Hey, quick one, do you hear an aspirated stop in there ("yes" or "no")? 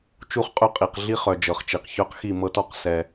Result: no